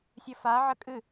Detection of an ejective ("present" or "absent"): present